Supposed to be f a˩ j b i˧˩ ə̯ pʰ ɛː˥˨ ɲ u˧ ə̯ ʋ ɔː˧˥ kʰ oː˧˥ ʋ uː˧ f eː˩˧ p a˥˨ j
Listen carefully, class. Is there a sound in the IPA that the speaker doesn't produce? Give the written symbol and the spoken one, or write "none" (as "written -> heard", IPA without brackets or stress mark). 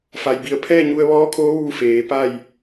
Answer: none